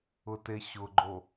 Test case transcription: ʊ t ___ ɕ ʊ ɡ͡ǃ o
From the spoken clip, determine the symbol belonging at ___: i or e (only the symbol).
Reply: e